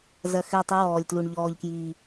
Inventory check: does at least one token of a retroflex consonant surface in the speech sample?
yes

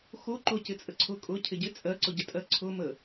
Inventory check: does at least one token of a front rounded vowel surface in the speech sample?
no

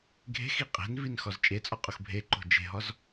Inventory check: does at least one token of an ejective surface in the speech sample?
yes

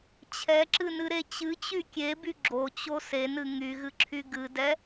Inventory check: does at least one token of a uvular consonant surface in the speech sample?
no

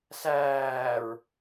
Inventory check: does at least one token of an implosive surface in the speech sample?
no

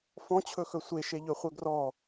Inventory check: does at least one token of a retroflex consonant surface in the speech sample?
no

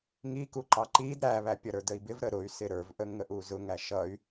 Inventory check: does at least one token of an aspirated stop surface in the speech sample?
no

